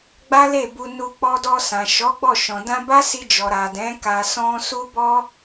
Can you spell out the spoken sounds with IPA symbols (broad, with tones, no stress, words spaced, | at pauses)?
ɡ͡ba˦le˦˨bu˧nu˧ k͡pɔ˧dɔ˧ sã˨ʃɔ˨˦ɡ͡bɔ˦˨ʃɔ̃˨ dã˧ba˦ si˧d͡ʒɔ˨ɾa˨dɛ̃˨˦ ka˧sɔ̃˦ su˦bɔ˦